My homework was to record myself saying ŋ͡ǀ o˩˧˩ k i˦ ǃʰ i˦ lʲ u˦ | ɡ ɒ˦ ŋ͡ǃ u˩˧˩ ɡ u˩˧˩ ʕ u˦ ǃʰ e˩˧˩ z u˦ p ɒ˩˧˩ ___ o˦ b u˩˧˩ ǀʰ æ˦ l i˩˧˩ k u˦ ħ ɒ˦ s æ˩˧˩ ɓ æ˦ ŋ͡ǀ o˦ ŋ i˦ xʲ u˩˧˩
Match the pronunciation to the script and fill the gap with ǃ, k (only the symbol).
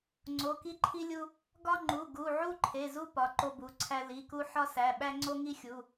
ǃ